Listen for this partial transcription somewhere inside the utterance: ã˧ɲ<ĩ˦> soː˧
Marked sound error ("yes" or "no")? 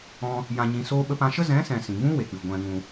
yes